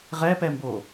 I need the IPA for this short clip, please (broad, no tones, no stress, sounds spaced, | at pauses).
ʁ ɛ p ɛ m b o